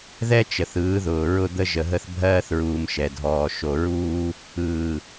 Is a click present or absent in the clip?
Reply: absent